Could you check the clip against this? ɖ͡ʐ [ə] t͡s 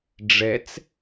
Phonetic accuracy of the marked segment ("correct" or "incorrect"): incorrect